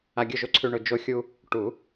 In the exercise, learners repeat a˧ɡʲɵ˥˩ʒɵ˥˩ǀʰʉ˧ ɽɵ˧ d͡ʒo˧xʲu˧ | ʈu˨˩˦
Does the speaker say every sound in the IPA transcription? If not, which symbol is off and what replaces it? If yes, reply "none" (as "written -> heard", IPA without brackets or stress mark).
ɽ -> ɳ